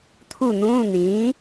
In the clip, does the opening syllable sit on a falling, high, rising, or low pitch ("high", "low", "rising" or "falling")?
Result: falling